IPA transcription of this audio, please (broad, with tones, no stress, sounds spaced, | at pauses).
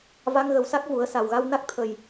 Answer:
v a˧ ŋ ɣ ə˨˩ w s a˦˥ k̚ v u˨˩˦ ə̯ s a˨˩ w ɣ a˧ w n a˦˥ k̚ t̪ʰ ə˨˩ j